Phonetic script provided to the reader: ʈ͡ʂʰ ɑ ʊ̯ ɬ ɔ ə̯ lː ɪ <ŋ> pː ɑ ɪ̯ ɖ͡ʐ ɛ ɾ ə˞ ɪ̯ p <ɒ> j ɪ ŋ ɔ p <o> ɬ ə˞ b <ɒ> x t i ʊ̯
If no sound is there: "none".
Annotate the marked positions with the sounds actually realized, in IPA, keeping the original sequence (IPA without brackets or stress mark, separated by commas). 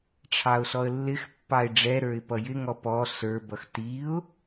x, ʌ, ɔ, ʌ